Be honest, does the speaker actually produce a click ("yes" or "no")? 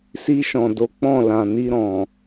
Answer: no